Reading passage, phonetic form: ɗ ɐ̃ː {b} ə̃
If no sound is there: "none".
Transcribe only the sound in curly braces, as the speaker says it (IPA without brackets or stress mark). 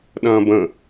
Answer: b